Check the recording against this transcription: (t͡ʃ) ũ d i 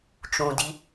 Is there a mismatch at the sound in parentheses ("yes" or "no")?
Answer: no